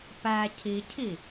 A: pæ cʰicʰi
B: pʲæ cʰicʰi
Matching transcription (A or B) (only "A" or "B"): A